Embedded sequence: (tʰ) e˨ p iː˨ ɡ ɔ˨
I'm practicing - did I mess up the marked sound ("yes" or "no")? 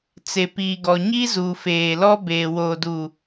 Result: yes